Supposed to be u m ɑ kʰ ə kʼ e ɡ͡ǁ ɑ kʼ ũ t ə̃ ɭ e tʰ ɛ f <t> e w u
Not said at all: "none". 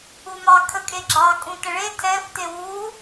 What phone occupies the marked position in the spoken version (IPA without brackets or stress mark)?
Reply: t